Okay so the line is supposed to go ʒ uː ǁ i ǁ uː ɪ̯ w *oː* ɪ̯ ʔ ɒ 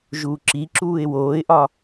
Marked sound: correct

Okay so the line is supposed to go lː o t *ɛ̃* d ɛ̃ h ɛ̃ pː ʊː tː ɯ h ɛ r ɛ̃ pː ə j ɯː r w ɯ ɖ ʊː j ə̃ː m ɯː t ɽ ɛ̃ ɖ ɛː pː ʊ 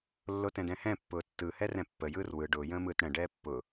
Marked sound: correct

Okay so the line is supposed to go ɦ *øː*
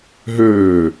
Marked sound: correct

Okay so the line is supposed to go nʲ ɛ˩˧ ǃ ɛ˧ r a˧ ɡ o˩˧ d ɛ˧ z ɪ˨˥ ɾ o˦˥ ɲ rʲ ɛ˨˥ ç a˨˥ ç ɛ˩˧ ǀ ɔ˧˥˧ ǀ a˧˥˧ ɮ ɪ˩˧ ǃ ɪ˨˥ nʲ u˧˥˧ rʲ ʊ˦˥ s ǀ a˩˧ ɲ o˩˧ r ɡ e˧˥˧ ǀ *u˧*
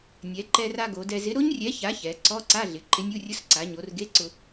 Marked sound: incorrect: ʊ˧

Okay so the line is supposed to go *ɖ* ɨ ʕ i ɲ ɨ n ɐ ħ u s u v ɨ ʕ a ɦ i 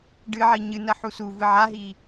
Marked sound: correct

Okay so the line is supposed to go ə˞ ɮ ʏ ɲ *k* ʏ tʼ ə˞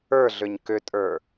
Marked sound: correct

